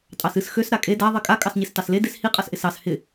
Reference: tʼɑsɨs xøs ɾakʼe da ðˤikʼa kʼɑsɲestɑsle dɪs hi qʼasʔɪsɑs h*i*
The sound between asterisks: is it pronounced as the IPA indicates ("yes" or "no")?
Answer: no